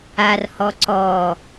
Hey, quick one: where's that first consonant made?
tongue tip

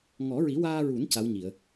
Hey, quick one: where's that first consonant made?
velum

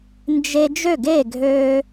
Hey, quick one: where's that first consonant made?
tongue tip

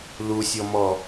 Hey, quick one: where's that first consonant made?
tongue tip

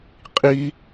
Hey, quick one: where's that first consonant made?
uvula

